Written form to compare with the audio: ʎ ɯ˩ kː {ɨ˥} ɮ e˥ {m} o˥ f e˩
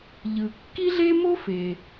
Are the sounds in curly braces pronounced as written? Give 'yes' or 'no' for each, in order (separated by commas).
no, yes